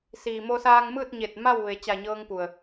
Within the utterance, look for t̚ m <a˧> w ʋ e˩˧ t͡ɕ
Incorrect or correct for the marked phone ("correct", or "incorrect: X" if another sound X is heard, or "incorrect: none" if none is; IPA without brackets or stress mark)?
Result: incorrect: a˥˨